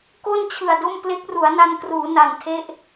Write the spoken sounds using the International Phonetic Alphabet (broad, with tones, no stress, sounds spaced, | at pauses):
k o˥˩ n t͡ɕʰ ɯ˨˩ a̯ d o˥˩ m p l e˦˥ k̚ r u˩˦ a̯ n a˧ n k r uː˩˦ n a˨˩ n tʰ e˦˥ ʔ